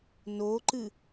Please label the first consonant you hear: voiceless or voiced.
voiced